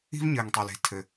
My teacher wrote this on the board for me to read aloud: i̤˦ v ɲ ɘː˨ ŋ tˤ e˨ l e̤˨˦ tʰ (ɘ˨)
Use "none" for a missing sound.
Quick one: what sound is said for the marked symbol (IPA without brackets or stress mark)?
ɘ˨